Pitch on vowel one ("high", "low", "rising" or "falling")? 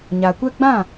low